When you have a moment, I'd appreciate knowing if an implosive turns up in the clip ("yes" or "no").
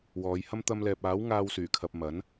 no